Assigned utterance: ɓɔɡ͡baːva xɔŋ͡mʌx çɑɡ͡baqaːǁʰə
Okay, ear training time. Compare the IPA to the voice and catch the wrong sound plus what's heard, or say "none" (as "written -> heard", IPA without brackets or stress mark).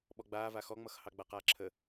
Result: ç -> h